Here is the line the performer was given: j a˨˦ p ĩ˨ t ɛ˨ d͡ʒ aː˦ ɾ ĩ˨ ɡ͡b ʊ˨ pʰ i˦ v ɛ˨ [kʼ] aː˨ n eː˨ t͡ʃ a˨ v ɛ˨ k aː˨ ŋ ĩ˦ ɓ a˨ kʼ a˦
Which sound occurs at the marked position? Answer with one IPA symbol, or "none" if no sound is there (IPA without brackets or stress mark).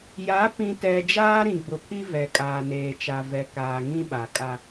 kʼ